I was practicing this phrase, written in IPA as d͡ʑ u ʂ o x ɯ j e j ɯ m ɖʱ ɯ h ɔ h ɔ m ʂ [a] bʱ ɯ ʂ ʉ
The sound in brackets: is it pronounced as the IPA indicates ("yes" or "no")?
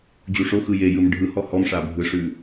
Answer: yes